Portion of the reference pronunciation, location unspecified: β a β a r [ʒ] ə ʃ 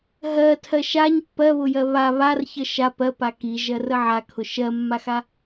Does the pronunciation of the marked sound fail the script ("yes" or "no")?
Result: yes